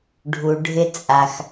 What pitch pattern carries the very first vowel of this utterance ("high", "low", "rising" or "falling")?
low